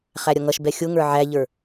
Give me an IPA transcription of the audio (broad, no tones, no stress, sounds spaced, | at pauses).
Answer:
χ æ ɾʲ ʌ ŋ ʌ ʃ b ɛ xʲ ʊ ŋ ə˞ ʕ æ ʎ ə˞